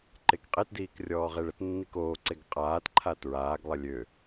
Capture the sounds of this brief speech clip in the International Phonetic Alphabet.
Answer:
ǃ e k qʼ e t d iː k rʲ ɔː ʁ e ɭ ə t nː i k oː ǀ e ɡ qʼ aː t ǃʰ a t ɹ aː ɡ lˠ ə lʲ ø

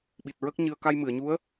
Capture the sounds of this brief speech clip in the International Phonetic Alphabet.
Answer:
ɓ i˨˩ t̚ ɹ ə˦˥ k̚ ɲ ɨ˧ ə̯ k a˧ j m ɨ˨˩˨ ə̯ ɲ u˧˥ ə̯

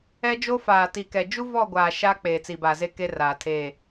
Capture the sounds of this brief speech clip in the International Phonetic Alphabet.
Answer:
ɛ˦ d͡ʒ o˦ f aː˨ t i˨ k ɛ˨ d͡ʒ u˦ v ɔ˦˨ ɡʷ aː˨ ʃ aː˦ k͡p eː˨ t͡s i˨ b a˨ z e˦ k e˦ r aː˨ tʰ eː˦˨

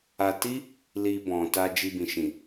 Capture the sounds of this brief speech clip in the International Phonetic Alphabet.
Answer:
a˧ t i˦ | l i˧ b ɔ̃˨ t a˧ d͡ʒ i˧ b ĩ˨ ʃ ĩ˨

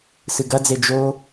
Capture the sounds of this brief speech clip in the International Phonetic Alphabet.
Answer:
s ɨ ɡ ɐ d͡z e d͡ʒ o

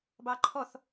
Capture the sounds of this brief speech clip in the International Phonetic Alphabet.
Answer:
b ɑ ǃʰ ɔ θ

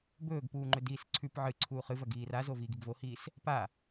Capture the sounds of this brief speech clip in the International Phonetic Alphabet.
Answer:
b ɵː ɡ p uː ŋ͡ǃ ɵ d iː s ǀʰ ʉ p ʕ ɨ ǀʰ uː χ ɨ v ɐ ɡ iː r a z o v iː ɡ i ɡ v o h iː s | p a

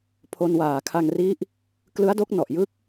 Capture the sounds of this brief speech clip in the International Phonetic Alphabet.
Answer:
pʰ o˧ n w aː˨˩ kʰ a˧ ŋ r i˦˥ ʔ | k l ɯ˦˥ a̯ d o˦˥ k̚ n ɔ˨˩ ʔ j ɯ˦˥ k̚

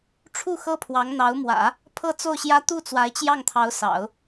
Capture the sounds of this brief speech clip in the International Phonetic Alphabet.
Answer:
ʈ͡ʂʰ u˥˩ x ɤ˥ pʰ w ɑ˧˥ ŋ n̪ ɑ˧˥ ʊ̯ m w ä̰˨˩˦ | pʰ ɤ˥˧ t͡s o˥˩ ʊ̯ ɕ j ä˥ t̪ u˥˩ t͡s w a˧˥ ɪ̯ t͡ɕ j ɑ˥˩ ŋ t̪ʰ ɑ˧˥ ʊ̯ s ɑ̰˨˩˦ ʊ̯

